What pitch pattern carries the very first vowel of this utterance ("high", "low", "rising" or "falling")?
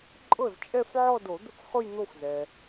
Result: falling